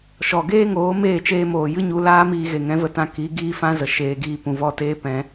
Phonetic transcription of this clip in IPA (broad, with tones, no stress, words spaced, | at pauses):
ʃɔ˨ɡeː˦ŋoː˨˦ meː˦˨t͡ʃeː˧moː˨jɨ˦ ɲu˧laː˦miː˧ ɣe˨ŋɛ̃˨˦və˧tã˧ ki˨˦ ɡiː˦fã˦zə˨ ʃeː˧ɡiː˦ pũ˨vɔ˦˨teː˦ pɛ̃˦